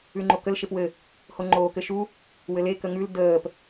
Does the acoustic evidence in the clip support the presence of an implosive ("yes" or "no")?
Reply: no